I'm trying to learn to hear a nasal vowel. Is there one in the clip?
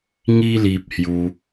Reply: no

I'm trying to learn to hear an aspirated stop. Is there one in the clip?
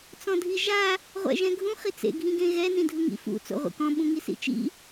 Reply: no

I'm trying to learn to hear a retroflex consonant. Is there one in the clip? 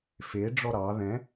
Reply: yes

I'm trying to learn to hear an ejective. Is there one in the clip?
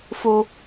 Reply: no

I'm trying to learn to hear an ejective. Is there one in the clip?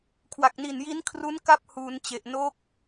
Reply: no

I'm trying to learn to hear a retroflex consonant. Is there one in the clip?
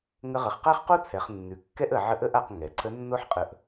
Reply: no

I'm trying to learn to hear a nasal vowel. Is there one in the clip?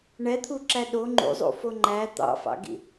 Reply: no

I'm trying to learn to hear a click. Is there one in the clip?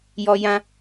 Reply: no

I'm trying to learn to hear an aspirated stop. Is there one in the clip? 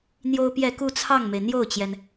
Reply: yes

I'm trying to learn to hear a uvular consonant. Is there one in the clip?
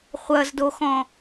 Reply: yes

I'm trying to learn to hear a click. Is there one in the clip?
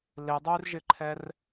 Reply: yes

